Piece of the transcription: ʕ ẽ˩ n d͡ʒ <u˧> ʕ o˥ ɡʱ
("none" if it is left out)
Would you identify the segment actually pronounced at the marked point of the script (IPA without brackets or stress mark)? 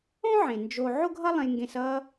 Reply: o˧